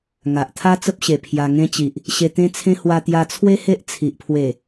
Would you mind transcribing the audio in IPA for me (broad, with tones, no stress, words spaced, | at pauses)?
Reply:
ŋa˨ʔt̪ʰa˦ t͡sə˦p̚ɕe˨˩ pʰja˧ŋẽ˦t͡ɕi˨ʔ | ɕe˧t̪ẽ˦t͡sʰẽ˦ hwa˧t̪ja˧t͡sʰwe˦ he˦ʔt͡sʰi˨ʔpʰwe˨˩